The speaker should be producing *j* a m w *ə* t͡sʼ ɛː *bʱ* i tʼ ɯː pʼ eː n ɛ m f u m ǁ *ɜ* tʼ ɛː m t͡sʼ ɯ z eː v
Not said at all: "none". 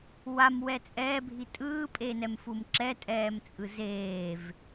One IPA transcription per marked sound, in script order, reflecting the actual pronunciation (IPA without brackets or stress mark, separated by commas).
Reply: w, ɛ, bʱ, ɛ